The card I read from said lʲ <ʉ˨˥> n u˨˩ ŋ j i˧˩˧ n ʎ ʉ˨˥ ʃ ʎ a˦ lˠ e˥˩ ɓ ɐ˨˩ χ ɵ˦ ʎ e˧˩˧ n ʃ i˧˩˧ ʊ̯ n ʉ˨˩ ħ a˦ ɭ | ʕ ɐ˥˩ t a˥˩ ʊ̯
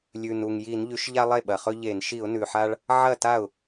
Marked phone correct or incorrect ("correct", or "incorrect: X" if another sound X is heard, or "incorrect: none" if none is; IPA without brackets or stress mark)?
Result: incorrect: ʉ˨˩